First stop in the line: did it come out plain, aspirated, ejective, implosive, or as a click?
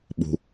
implosive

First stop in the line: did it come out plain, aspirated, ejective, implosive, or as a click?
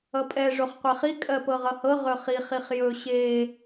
ejective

